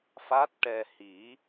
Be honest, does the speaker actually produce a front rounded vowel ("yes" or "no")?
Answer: no